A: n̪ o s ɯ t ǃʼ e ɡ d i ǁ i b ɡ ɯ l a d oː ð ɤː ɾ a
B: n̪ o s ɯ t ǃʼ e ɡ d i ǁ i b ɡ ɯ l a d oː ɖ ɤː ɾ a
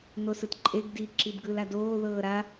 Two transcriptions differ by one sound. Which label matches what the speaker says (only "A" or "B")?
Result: A